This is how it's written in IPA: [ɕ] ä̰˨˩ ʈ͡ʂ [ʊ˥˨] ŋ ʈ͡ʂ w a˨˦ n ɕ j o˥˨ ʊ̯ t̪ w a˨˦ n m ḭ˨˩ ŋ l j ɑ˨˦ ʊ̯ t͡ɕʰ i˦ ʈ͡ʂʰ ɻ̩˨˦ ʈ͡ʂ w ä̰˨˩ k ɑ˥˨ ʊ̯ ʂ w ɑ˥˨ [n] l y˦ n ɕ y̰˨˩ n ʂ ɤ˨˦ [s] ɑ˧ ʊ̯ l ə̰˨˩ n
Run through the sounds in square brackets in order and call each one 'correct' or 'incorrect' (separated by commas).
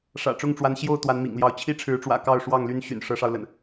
incorrect, correct, incorrect, incorrect